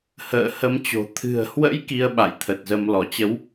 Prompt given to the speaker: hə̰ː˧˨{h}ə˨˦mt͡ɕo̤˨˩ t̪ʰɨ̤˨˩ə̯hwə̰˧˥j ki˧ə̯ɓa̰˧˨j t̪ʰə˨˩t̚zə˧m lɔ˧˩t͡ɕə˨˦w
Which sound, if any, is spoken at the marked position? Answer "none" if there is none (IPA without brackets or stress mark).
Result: h